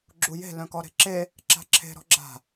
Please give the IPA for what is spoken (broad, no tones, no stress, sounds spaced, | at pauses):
ɡ͡ǁ u j e̤ l œ̃ k ɔ ɾ e̤ ǁ e | ǁ a̤ ǁʰ e̤ ɾ ɔ̤ ɡ͡ǁ a̤